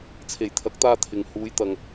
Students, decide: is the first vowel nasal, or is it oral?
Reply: oral